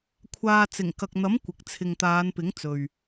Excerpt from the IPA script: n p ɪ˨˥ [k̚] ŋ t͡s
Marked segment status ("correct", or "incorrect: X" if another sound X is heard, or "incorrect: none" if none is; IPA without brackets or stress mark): incorrect: none